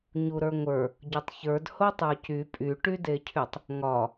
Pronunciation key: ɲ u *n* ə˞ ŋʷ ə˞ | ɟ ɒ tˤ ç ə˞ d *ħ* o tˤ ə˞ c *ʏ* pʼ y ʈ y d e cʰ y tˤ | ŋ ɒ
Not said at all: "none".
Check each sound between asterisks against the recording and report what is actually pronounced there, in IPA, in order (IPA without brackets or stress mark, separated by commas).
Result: ɾ, h, y